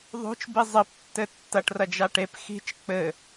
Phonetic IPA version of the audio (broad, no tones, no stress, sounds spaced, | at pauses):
ðˤ o̤ t͡ʃ b i zˤ ɘ p tː ɘ tː ɐ ʈ r ɐ d͡ʒ a ʈ e p x i̤ t͡ʃ k͡p ɘ